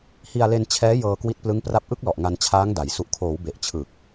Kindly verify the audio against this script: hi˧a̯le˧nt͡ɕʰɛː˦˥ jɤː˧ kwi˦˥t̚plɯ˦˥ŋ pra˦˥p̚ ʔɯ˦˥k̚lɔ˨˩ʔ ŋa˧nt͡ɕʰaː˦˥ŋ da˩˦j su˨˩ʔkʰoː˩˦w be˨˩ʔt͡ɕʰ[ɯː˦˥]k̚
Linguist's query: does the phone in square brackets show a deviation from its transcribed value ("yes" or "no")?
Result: yes